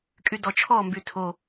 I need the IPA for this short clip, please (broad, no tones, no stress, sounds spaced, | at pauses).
kʼ y d ɔ t͡ʃʰ ɔ m b y tʰ o